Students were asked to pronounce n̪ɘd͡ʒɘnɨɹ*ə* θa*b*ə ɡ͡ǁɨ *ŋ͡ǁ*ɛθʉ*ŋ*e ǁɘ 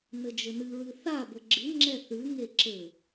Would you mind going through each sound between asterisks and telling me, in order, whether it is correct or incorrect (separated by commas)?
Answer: incorrect, correct, correct, correct